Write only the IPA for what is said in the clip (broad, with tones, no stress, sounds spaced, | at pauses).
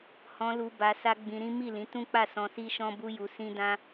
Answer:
h ɔ̃˧ l u˧ b a˧ s a˦ ɡ͡b ĩ˧ ɾ ĩ˦ m i˦˨ l ĩ˨˦ t ũ˦ k͡p a˦˨ s ɔ̃˧ s i˦ ʃ ɔ̃˦ b u˦ j u˧ s ĩ˦ d ã˦